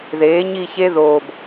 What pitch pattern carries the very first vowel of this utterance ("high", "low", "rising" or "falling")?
rising